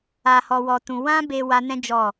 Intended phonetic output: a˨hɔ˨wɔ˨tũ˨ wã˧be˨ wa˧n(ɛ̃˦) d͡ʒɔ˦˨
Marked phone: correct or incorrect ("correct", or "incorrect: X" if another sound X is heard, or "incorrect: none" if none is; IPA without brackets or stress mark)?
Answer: correct